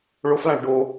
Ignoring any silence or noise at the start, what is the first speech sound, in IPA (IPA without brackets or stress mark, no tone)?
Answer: ɭ